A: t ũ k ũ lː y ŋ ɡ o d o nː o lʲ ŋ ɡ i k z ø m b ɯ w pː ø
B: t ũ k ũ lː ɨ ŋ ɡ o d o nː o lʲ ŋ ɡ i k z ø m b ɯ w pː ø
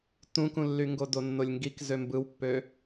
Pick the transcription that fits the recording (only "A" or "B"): A